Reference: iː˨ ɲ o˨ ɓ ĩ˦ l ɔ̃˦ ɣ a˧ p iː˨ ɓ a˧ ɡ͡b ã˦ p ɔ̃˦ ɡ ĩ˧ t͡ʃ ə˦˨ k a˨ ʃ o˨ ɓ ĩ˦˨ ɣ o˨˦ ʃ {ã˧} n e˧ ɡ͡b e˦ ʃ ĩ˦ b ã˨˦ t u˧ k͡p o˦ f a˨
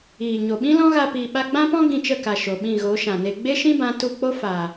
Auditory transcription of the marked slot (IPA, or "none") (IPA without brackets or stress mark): ã˨